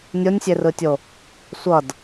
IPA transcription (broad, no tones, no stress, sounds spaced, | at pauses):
nʲ o nʲ sʲ e r ɯ tʲ o | sʷ ʌ d